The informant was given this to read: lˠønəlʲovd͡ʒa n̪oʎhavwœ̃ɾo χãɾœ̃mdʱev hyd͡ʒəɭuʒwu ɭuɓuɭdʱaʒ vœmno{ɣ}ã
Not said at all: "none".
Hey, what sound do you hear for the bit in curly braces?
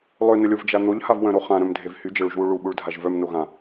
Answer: ɣ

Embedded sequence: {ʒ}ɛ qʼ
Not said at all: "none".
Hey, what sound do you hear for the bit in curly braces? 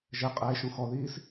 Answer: ʒ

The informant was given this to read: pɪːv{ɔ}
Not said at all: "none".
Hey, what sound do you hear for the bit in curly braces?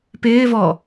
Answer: ɔ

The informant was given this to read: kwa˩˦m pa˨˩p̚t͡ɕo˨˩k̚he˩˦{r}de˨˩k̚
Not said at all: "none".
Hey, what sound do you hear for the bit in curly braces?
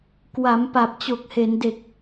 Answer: n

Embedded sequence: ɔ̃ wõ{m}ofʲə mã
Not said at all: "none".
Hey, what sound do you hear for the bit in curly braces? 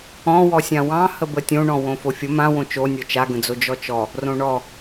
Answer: f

